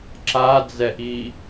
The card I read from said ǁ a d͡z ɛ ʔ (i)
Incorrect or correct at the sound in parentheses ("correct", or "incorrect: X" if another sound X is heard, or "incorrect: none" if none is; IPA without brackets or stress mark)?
correct